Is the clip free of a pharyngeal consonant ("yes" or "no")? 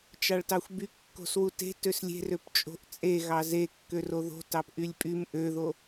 yes